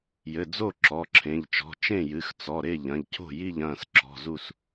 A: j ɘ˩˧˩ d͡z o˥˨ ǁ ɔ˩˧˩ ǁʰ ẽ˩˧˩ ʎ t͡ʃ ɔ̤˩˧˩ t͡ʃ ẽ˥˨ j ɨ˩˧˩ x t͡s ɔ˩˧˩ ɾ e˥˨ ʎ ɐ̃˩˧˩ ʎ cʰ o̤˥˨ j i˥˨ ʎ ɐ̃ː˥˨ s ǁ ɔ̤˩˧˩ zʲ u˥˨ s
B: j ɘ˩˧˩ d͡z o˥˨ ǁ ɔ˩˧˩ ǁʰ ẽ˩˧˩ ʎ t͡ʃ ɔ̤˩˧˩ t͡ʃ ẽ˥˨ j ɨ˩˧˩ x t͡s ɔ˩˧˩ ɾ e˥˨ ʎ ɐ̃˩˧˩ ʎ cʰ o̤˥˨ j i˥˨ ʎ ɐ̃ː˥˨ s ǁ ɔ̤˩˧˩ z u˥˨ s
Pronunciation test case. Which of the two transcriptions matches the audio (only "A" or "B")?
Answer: B